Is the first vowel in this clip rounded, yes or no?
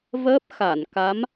no